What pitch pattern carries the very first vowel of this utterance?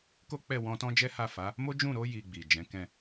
high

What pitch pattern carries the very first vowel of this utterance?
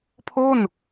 falling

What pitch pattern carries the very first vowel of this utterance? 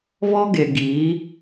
high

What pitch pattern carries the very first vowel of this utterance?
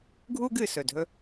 high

